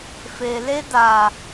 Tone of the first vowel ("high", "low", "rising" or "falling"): low